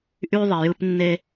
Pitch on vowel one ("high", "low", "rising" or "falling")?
high